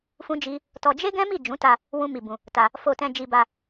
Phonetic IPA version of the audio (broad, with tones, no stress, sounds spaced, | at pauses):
f ũ˦ d͡ʒ i˦ | t ɔ˧ d͡ʒ e˦ ɡ ɛ̃˦ m i˦˨ d͡ʒ ũ˨˦ t a˧ | w ũ˦ m i˧ b ũ˧ | t a˧ | f o˧ t ɛ̃˧ d͡ʒ i˧ b a˧